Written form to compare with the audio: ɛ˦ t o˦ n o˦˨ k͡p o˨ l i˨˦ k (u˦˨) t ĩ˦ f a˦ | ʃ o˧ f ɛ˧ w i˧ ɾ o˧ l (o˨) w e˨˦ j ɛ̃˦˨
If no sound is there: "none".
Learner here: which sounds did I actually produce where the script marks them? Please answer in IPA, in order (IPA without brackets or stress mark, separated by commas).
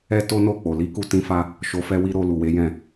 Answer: u˧, u˨